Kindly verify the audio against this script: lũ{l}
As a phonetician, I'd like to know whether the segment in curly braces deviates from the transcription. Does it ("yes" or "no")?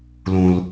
no